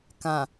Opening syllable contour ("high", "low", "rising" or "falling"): low